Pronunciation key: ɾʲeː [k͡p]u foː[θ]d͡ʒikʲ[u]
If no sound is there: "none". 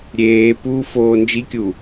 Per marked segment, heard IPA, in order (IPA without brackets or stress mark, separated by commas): p, n, u